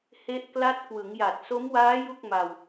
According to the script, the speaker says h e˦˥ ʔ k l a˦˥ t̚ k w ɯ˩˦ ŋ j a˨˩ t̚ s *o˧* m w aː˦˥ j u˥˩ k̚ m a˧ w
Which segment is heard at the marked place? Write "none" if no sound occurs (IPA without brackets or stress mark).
o˦˥